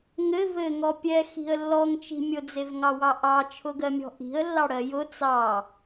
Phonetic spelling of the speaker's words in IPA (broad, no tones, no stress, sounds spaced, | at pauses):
ŋ ɘ v ɘ ŋ ɔ pʲ ɛ x i̤ ə̯ lː ɔ ŋ t͡ʃ i̤ mʲ ʊ d͡z e v ŋ ɑ w ɑ ʔ ɑ t͡ʃʰ ʊ ɡ ɜ mʲ ɔ̤ ʔ i̤ ə̯ lː ɑ ɽ ɜ j ʊ t͡s ɑ